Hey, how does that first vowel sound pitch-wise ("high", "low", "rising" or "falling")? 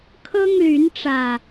high